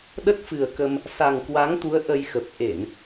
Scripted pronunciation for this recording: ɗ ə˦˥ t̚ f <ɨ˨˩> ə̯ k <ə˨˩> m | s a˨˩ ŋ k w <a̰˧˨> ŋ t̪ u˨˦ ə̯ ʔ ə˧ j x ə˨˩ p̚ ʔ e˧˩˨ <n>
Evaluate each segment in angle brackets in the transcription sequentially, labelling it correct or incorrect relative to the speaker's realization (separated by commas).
correct, incorrect, incorrect, correct